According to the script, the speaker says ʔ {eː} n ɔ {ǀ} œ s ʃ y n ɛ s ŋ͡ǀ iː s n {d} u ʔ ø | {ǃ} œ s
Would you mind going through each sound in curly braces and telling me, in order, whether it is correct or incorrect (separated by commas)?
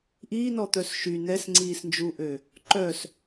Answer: incorrect, incorrect, incorrect, correct